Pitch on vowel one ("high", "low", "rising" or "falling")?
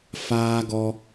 high